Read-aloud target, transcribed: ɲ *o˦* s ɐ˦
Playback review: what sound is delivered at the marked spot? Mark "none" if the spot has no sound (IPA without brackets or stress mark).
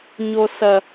o˦